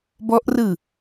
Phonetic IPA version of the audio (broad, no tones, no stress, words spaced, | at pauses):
bɔʔrɯ